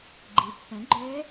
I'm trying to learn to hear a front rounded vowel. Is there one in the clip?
yes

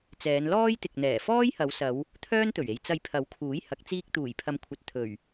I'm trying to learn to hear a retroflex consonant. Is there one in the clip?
no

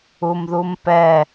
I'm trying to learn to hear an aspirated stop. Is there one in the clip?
no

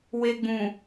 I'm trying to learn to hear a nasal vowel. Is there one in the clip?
yes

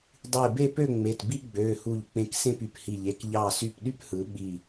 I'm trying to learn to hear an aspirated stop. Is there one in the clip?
no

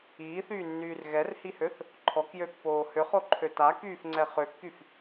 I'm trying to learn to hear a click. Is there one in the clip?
yes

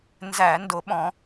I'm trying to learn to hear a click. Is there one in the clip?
no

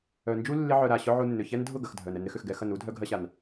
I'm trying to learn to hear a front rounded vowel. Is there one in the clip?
yes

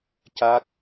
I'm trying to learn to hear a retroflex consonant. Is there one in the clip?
no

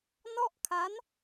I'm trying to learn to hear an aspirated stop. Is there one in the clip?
yes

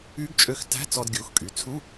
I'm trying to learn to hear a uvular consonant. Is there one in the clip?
no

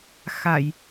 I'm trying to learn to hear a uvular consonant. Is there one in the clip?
no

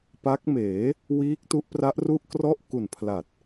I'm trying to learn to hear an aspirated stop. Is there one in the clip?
yes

